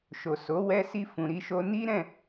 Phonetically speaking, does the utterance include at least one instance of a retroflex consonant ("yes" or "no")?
no